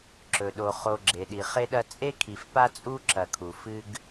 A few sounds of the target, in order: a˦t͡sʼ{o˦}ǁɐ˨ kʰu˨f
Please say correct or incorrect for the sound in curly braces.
incorrect